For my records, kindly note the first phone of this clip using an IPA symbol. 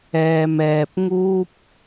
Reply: ɛː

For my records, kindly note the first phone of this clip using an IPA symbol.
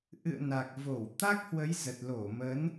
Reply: ʔ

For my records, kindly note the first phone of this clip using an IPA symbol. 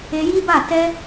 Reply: e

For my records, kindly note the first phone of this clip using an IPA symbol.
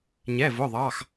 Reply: ɲ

